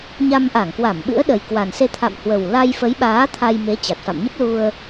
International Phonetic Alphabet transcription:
ɲ a˧ m ʔ a˧˩ ŋ k w a˧˩ m ɓ ɨ̰˧˥ ə̯ ɗ ə˨˩ j k w a˨˩ n s e˧ t̪ʰ a̰˧˨ m h w ə˨˩ w l a˧ j f ə˨˦ j ɓ aː˨˦ t̪ʰ a˧ j m e˨˦ t͡ɕ a˨˩ t̚ f a̰˧˨ m ɲ ə˦˥ p̚ l u˧ ə̯

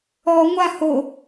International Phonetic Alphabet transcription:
ɔ ŋʷ a h o

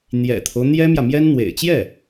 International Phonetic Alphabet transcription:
n̪ j ɛ̰˨˩ t̪ʰ o˦ ʊ̯ n̪ j ɛ˥ m j ä˨ m j ɛ˥ n n̪ w ḛ˨˩ ɪ̯ t͡ɕ j ɛ˥˩

